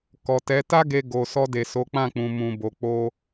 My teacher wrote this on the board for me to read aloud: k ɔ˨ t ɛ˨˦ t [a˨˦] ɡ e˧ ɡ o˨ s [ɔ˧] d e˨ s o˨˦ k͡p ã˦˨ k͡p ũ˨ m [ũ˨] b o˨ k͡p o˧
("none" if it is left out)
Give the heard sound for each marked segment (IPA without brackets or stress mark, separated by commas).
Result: a˦, ɔ˧, ũ˨